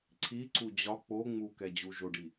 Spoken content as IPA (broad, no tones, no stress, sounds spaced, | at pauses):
ǀʰ i ǀ u d͡ʑ ɒ k͡p o ŋ͡m u k ɛ d͡ʑ u ʒ o ɖ i